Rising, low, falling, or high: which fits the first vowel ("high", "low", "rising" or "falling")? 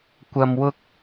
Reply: low